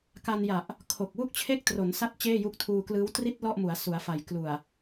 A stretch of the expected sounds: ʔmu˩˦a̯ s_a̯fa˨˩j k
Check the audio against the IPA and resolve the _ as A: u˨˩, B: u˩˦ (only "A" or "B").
B